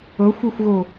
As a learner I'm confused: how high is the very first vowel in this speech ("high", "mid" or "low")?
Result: mid